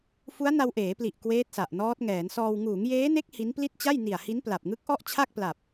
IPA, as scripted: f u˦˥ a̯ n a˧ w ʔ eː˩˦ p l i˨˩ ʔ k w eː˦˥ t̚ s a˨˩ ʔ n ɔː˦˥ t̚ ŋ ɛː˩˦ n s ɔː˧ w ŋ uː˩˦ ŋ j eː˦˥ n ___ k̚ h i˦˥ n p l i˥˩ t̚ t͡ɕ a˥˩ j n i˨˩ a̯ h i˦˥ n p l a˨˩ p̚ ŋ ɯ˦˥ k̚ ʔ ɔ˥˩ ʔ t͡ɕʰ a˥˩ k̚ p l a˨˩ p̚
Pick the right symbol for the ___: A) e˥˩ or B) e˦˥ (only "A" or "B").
B